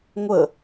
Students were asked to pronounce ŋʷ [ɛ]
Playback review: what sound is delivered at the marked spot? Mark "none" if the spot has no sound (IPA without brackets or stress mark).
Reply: ə